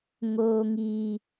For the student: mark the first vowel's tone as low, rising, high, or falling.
high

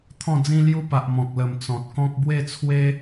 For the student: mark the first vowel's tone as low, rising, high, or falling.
falling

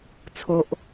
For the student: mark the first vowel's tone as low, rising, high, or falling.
high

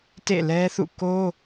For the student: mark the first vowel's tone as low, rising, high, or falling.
falling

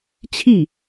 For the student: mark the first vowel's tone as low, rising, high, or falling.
falling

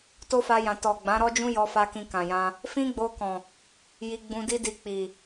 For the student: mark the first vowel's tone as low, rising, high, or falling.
high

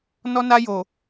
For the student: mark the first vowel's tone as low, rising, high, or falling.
high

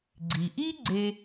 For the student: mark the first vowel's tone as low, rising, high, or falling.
low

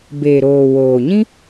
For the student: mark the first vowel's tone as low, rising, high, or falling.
low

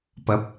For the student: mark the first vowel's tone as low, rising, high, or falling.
rising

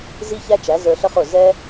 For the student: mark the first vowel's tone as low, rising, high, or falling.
high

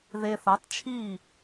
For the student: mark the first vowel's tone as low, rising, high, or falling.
low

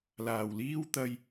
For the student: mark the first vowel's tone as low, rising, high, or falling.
low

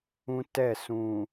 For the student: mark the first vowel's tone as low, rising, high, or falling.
high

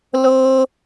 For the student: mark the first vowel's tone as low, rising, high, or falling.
high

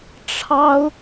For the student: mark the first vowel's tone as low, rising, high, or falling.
high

